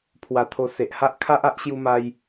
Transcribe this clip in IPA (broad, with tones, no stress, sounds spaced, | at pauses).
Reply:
pʰ w a˧ t̪ʰ o˧ s e˨ ʔ h a˦ ʔ kʰ a˦ ʔ a˦ ʔ ɕ j u˧ m a˧ j